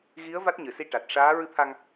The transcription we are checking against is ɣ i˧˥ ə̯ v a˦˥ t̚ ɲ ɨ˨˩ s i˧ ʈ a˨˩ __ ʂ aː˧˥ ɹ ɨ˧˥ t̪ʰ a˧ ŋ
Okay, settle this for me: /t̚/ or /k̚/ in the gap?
t̚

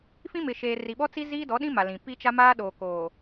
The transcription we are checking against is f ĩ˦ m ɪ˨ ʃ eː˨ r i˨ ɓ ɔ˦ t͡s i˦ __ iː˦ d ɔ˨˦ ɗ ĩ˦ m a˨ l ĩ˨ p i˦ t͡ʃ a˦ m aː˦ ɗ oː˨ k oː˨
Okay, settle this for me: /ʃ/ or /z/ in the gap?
z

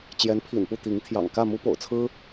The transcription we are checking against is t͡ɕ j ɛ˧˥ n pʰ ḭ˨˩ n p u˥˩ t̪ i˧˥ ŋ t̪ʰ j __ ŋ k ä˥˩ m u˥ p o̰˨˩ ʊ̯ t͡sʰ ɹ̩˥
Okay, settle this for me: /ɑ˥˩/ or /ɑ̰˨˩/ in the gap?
ɑ̰˨˩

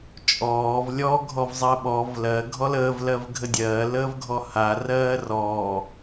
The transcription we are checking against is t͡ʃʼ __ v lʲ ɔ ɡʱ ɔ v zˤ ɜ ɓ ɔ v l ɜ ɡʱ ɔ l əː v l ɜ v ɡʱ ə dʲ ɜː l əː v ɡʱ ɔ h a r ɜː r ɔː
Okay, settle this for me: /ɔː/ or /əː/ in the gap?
ɔː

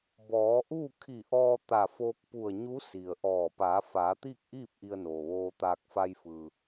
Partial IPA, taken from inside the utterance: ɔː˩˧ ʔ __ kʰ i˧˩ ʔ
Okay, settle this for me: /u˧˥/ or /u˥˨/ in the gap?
u˥˨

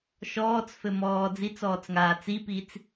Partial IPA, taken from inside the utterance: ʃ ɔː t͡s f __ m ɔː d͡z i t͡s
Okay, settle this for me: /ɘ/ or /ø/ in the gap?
ɘ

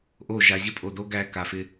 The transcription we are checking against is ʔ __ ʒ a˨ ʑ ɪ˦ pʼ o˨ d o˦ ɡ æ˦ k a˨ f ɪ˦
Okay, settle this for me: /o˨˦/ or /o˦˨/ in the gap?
o˦˨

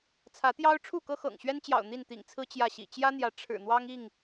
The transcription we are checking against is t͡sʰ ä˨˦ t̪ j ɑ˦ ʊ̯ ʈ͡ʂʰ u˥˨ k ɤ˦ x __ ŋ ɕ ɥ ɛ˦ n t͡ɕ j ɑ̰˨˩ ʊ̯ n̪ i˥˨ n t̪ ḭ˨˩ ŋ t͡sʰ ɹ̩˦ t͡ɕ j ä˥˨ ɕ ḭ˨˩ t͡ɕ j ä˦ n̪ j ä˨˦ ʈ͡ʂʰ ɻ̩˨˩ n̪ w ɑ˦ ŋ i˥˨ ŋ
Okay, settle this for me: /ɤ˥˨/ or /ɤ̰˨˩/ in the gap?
ɤ̰˨˩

